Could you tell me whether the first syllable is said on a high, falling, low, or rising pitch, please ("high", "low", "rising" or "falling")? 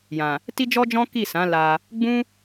low